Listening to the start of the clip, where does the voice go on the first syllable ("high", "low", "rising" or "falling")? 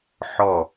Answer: falling